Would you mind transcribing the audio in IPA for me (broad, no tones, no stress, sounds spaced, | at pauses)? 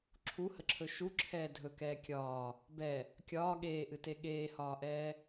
ǁʰ u h ə ǁʰ ɵ ʃ u ǁʰ ɛː dʱ ɵ k ɛː kʲ ɒː | b ɛ | kʲ ɒː ɠ eː ʔ ɨ t e ɠ eː h ɒː ʔ ɛː